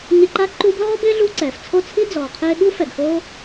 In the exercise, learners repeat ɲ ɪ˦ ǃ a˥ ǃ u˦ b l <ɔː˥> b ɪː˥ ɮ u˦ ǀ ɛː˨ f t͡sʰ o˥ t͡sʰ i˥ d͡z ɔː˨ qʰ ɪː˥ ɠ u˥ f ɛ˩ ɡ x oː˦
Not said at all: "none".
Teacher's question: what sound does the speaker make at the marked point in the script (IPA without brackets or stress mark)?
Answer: ɔː˥